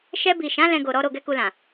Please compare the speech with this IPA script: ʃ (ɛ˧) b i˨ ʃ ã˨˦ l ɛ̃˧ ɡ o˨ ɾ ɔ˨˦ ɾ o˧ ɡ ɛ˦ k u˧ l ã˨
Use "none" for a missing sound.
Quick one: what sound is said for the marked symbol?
ɛ˧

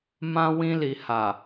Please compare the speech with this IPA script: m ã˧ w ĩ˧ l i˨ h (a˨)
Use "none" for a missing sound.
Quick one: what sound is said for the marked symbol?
a˨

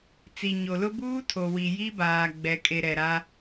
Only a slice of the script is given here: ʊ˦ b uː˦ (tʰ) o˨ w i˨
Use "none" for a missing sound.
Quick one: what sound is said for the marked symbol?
tʰ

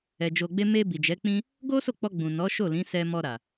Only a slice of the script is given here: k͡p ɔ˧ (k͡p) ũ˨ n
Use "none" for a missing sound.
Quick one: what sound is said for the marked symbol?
ɡ͡b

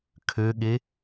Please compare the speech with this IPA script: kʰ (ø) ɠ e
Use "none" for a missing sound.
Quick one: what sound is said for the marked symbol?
ø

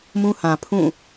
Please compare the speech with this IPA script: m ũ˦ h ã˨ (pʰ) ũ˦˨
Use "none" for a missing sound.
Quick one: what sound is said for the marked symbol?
pʰ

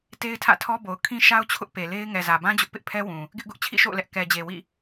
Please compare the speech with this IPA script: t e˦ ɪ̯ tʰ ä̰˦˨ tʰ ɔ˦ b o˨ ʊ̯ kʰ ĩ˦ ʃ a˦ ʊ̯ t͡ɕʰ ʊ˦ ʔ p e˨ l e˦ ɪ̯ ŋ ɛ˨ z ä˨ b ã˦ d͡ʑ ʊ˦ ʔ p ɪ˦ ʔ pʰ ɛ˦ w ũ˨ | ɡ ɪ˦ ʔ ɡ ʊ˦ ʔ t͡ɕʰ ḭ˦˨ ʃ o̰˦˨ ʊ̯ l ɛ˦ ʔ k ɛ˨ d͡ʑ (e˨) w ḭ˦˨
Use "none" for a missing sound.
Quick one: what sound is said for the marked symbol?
e˨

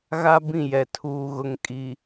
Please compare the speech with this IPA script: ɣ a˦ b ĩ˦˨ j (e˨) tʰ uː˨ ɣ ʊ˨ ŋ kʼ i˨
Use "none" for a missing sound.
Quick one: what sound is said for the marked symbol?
ɛ˨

